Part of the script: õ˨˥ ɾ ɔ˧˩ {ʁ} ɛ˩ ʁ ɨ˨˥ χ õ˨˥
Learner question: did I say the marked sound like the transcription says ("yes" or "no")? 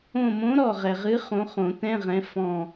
yes